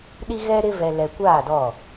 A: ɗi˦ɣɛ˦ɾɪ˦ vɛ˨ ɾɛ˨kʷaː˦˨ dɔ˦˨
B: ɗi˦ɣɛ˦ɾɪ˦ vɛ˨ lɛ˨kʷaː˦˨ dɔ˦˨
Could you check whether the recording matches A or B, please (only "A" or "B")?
B